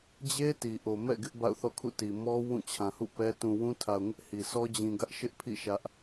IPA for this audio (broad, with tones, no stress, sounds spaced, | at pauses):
d͡ʑ e˦ t i˨ ʔ o˨ m ɛ̰˦˨ ɡ ɪ˦ ʔ b a̰˦˨ ʊ̯ θ ɔ̰˦˨ kʰ ṵ˦˨ t i˨ m ɔ˦ w ũ˦˨ t͡ɕʰ ã˨ h ṵ˦˨ p ɛ˦ t ũ˨ w ũ˦ tʰ a˨ ʊ̯ ŋ ɪ˦ ʔ h i˨ s ɔ˦ d͡ʑ ĩ˨ ɡ ä˦ ʔ ʃ ɪ˦ ʔ pʰ ḭ˦˨ ʃ ä˦ ʔ